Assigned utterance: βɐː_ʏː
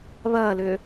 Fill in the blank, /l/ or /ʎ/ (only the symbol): l